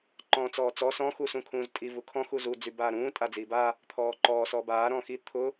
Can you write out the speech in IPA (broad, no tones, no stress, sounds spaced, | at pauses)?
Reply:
ǃ ɔ̃ː t͡s ɔː t͡s ɔ s ɔ̃ x u s ũ kʰ ũː z tʼ i v u kʰ ɔ̃ x u z u d͡z y b aː ɾ ũː tʼ a d͡z iː b a | t̪ʰ ɔː ǃ ɔː s ɔ b aː ɾ ɔ̃ x i t̪ʰ ʊ